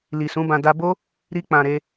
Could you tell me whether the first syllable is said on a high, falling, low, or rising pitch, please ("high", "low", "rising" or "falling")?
low